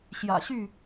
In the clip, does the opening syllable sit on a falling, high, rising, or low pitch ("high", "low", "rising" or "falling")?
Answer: low